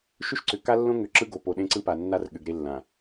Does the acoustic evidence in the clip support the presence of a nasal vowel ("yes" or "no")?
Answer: yes